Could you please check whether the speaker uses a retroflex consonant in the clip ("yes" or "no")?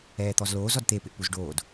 yes